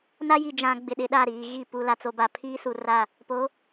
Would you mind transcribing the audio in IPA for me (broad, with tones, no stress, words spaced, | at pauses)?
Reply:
na˦ji˨d͡ʒã˨ ɡ͡bɪ˨ɗɪ˨ɗa˦˨ ɾiː˨ɣi˦˨ pu˨ la˨t͡so˨ba˨ pʰiː˦su˨ ra˦˨ | po˨˦